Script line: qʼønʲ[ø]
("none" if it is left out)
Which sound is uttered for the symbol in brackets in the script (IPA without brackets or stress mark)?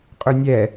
ɛ